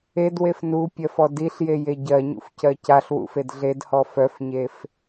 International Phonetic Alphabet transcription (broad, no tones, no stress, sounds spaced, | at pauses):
e d w e f n u pʲ ɜ f ɔ d i ɬ j e j e ɟ ɜ ɲ ṵ f c ɜ c a ɬ w ṵ f e d ɮ e d h ɔ f œ f ɲ e f